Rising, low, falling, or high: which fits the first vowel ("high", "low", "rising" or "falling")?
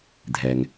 low